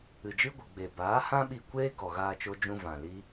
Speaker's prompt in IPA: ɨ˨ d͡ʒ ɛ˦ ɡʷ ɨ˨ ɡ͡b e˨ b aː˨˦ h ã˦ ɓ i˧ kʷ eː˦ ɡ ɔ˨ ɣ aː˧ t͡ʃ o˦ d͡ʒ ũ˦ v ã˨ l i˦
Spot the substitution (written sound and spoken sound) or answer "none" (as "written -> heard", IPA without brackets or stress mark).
ɛ˦ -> ɨ˦